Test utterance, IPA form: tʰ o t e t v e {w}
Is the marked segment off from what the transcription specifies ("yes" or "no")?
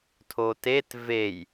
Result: yes